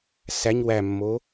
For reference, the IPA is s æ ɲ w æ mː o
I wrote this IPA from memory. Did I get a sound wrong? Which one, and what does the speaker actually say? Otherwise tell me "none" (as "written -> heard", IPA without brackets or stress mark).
none